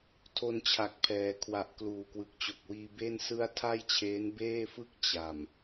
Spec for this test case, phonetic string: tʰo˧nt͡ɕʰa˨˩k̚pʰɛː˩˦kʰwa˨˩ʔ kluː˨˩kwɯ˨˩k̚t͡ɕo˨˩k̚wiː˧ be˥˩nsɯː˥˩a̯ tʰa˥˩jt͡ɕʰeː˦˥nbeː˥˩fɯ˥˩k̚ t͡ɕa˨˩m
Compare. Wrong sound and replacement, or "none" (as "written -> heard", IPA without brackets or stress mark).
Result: ɯː˥˩ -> ɯ˥˩